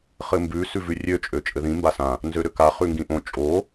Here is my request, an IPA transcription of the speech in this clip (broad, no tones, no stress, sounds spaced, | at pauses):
χ ɘ m b ʉ s ʉ v ʉ rʲ ø t͡ʃʼ ø t͡ʃʼ ɘ ð ĩ m b a s ã | n z ø ɾ ø k a χ ʉ ŋ ɡ ĩ ʔ õ t͡ʃʼ o